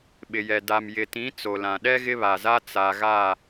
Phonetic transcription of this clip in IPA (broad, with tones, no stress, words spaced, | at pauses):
ɓɪ˨jɛ˨ da˨mjɪ˨tĩ˨˦ t͡so˨lã˨ ɗɛ˦ ɣɪ˦βa˨za˦ t͡sa˨ɣa˦˨